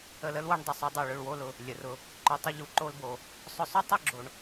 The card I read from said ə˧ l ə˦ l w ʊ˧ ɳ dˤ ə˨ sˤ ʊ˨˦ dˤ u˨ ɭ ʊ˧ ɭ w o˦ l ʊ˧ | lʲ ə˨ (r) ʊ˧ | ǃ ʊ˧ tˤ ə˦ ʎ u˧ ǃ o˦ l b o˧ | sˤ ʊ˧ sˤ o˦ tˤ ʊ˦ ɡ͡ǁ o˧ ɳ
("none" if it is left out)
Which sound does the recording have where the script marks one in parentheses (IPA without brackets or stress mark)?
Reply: r